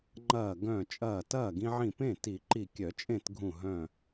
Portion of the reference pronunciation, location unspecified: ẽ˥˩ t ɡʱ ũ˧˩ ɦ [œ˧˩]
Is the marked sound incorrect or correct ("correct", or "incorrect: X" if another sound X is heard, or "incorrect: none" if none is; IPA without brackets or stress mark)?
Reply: incorrect: œ̃˧˩